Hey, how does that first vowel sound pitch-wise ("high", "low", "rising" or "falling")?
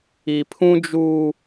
low